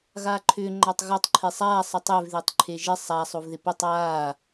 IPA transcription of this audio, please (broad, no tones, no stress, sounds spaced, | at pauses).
ɣ aː ǃʰ ʏː ŋ͡ǃ a tˤ ɣ ɒ tˤ ǃʰ e sˤ aː sˤ ə tˤ e v ð ɪː tˤ ǃʰ e ʒ ɪ sˤ a sˤ o v ð ɪ p ʏ tˤ aː